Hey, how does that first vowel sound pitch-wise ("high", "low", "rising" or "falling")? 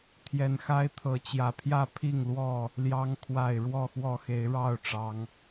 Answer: low